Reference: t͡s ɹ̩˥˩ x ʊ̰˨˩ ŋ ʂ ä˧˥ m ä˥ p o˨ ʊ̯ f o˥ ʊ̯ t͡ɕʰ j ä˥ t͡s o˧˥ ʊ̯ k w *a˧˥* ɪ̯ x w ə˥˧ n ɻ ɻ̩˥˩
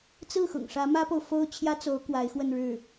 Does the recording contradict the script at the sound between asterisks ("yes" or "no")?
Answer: no